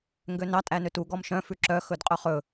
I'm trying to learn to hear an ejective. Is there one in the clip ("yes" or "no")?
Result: yes